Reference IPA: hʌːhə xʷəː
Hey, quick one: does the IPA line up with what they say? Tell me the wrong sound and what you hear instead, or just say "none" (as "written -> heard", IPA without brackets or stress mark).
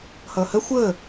none